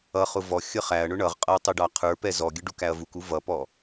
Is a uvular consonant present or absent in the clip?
present